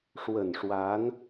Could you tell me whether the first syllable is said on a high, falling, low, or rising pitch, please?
low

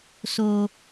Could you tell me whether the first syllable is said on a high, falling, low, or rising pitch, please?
high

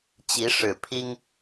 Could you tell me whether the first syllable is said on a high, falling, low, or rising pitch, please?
rising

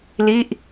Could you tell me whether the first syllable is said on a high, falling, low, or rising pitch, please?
falling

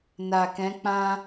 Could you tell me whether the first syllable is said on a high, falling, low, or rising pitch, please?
low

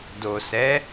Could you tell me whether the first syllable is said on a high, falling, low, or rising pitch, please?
low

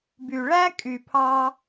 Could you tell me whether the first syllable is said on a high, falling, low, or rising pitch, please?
low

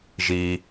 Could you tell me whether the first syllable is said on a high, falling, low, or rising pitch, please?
high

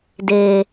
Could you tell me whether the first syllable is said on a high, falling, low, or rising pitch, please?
low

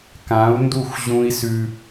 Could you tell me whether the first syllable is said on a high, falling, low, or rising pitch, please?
rising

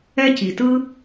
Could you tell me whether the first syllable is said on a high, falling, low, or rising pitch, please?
high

